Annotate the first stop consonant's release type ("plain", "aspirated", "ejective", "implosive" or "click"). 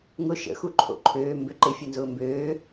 click